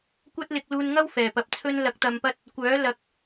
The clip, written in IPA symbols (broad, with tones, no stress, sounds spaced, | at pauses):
kʷ ɐ˥ t̚ l ɪ˧ k̚ l uː˧ n ŋ ɐ˥ w f ɛː˨˩ p ɐ˨ p̚ t͡sʰ ɵ˥ n l ɐ˧ k̚ t̪ ɐ˨ m p ɐ˧ t̚ | kʷ œː˨˥ l ɐ˨ k̚